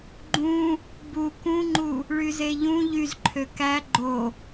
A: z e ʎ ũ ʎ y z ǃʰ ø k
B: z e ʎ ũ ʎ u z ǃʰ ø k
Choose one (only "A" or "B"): A